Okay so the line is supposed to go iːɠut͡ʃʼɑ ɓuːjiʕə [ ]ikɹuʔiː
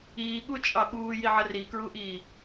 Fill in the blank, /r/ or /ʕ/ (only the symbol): r